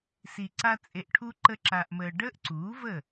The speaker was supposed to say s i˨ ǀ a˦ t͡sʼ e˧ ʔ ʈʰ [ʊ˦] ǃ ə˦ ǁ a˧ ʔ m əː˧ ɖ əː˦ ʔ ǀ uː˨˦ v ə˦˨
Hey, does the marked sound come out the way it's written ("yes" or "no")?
no